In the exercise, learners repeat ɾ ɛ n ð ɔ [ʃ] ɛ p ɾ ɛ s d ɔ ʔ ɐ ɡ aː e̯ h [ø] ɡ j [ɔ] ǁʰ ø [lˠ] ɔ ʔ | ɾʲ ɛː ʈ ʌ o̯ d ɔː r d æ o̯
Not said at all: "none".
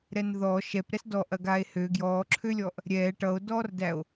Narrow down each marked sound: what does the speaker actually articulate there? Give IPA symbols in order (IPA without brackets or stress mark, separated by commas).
ʃ, ø, ɔː, lʲ